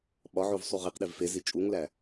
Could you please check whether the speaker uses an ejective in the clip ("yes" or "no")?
yes